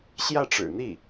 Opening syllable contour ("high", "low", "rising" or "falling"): falling